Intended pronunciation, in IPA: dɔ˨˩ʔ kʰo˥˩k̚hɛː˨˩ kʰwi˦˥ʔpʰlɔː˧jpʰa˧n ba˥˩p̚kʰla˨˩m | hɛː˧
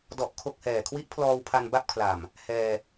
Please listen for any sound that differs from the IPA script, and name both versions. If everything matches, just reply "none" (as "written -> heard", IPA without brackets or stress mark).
j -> w